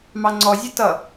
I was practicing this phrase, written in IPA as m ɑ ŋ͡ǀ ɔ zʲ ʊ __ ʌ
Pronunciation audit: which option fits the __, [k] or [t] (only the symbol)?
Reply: t